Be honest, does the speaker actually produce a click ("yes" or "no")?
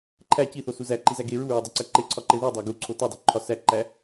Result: yes